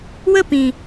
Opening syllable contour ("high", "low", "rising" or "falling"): falling